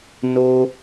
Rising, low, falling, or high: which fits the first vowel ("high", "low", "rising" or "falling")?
high